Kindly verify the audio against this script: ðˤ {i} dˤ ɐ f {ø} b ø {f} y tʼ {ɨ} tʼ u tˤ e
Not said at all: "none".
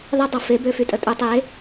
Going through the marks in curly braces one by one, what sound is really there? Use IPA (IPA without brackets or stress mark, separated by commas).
ɪ, e, f, ə